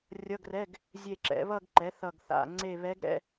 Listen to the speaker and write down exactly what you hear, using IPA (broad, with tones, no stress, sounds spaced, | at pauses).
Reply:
rʲ ʌ˧˥˧ ɡ r ɛ˧˥˧ ɡ | zʲ e˦˨ ǁ ɛ̰˩˥ β ʌ˦˨ ɡ ǃ ɛ˩˥ θ ʌ˦˨ ɡ θ a̰˧˥˧ ŋ͡ǀ e˦˨ β ɛ˧˥ ɡ ɾ ɛ̰˧˥˧